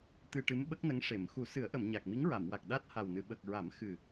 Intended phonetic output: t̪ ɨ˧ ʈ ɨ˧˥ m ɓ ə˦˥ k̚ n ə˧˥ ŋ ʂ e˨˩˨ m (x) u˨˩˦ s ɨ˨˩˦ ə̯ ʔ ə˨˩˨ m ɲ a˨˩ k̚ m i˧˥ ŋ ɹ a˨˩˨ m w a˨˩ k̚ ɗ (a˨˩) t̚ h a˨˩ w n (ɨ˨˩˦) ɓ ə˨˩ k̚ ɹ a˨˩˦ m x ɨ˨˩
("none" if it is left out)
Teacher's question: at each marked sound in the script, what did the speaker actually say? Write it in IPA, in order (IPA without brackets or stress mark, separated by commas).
x, a˦˥, ɨ˨˩˨